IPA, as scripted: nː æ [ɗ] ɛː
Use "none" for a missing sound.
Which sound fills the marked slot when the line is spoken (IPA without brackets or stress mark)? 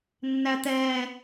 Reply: t̪